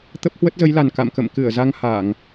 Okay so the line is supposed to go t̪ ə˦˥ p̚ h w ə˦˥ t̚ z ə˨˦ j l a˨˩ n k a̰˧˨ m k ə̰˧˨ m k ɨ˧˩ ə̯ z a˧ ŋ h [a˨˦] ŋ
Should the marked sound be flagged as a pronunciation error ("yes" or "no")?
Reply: yes